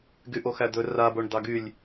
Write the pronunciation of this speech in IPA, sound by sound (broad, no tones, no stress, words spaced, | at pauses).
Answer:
ɡyʔoxæd̪ɵ raboɳ d̪ɑɡylʲ